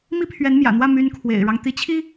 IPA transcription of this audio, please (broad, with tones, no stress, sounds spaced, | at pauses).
m i˥ pʰ ɥ ɛ˧˥ n m j ä̰˨˩ n̪ w ä˥˩ m y˧˥ n kʰ w ḛ˨˩ ɪ̯ ɻ ɑ˦ ŋ t̪ i˧˥ t͡ɕʰ i˥